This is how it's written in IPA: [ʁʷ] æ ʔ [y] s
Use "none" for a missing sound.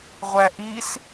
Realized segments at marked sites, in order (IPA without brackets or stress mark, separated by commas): ʁʷ, i